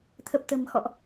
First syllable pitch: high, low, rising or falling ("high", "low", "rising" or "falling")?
low